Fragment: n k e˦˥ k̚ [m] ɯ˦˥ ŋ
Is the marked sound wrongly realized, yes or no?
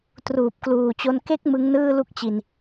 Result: no